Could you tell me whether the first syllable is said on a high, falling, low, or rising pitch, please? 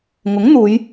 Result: rising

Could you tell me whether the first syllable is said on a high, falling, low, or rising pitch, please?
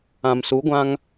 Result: low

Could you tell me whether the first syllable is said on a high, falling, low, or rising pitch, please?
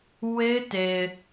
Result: high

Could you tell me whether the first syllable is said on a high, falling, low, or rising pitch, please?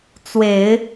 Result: low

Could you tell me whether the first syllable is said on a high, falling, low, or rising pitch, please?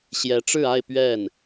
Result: rising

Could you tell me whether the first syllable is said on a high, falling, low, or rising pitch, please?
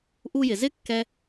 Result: high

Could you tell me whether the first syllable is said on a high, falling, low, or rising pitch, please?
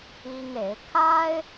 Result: high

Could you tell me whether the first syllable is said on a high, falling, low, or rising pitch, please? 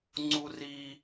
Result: high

